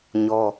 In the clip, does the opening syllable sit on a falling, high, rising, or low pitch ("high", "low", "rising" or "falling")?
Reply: high